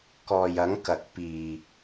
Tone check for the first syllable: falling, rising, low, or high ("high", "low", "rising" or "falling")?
low